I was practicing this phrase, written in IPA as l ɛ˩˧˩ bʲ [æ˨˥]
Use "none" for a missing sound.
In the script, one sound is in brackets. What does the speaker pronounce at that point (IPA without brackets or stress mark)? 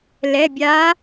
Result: a˨˥